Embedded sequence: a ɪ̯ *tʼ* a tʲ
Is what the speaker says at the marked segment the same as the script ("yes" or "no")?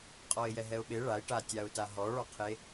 no